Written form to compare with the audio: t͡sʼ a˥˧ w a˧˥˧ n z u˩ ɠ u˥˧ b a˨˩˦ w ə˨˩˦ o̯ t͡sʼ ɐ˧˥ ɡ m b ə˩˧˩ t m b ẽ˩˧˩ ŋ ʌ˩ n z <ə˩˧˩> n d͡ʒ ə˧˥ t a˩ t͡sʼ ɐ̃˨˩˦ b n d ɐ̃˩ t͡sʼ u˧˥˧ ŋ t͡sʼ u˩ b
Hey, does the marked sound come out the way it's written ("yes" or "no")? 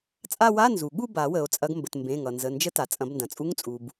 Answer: yes